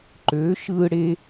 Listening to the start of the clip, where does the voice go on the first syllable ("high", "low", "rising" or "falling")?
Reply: rising